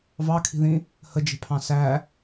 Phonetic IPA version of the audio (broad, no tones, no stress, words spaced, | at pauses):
vɑkʰi̤ðĩ | həd͡ʒe̤pʰɑ̃ sæ